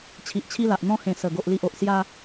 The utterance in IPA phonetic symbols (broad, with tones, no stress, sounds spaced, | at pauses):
t͡ɕʰ i˨ ʔ t͡ɕʰ i˧ l a˨ ʔ n̪ ɔ̃˧ h ẽ˨˩ s ə˨˩ ɡ o˨ ʔ l i˨ ʔ o˨ ʔ s j a˧